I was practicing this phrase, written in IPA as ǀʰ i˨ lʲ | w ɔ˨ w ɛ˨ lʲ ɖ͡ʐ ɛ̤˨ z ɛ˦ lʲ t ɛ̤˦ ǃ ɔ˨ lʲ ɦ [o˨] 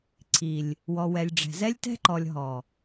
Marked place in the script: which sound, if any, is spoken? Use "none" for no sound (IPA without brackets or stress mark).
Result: ɔ˨